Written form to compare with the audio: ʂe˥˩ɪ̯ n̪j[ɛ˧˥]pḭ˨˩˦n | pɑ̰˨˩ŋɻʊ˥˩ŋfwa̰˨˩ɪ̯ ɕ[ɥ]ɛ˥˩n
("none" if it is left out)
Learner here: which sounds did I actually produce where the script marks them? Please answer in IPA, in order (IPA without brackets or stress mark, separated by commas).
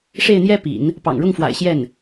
ɛ˥, j